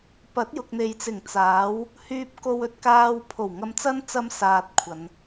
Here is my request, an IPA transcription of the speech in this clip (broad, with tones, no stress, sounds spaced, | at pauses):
p ɐ˨˥ t̚ j ʊ˨ k̚ n̪ e˨ j t͡s ɪ˨˩ ŋ t͡s aː˨˥ w | h yː˥ p̚ k o˥ w ɵ˥ t̚ k aː˥ w pʰ o˨˩ w ŋ ɐ˧ m t͡s ɐ˥ n t͡s ɐ˥ m s aː˧ t̚ kʷʰ ɐ˨˧ n